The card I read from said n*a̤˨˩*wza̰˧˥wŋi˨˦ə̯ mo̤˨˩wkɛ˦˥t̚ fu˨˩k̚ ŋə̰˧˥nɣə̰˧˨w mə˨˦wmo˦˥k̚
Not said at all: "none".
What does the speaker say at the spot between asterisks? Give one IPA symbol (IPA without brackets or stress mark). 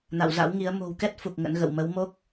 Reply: a̰˧˨